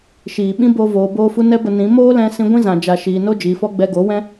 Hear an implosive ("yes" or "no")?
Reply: yes